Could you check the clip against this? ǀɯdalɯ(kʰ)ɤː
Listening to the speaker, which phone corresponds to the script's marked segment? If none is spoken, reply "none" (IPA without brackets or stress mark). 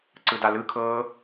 kʰ